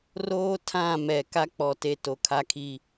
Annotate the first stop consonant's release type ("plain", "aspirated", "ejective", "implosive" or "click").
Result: aspirated